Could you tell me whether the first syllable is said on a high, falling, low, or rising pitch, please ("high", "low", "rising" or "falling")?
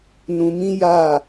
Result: low